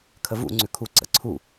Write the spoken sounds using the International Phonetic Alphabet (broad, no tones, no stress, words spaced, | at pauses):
kʰəvṵ ŋ͡ǀʉkʰu ǀə̰ǀʰu